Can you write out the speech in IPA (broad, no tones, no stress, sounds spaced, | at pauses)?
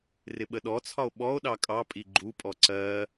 r ɪ ɓ ə ɗ ɔ t͡sʰ ɒ o̯ ɓ ɔ o̯ ɗ ɑ kʼ ɑ pʼ i ɡ͡ǃ u pʼ ɔ ǀ ɜ